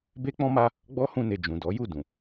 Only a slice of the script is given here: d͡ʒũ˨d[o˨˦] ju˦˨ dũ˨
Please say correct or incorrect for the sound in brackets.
incorrect